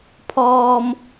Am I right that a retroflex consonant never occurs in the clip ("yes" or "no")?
yes